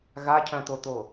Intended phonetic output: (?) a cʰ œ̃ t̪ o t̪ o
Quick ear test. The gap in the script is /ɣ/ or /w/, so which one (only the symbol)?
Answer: ɣ